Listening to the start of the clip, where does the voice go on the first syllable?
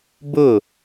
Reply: falling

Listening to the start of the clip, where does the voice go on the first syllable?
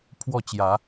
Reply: falling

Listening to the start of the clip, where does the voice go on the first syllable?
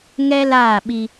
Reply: high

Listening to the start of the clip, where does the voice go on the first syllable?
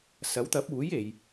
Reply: rising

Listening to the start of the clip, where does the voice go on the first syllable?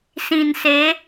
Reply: low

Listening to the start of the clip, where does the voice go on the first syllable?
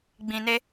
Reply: low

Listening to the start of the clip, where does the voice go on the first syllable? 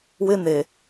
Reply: high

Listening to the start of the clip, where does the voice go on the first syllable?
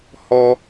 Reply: high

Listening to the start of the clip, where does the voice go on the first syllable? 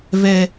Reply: high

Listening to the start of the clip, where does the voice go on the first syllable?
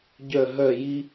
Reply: falling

